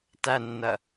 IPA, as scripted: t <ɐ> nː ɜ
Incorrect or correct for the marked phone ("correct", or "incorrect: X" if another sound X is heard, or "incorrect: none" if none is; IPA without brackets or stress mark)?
incorrect: æ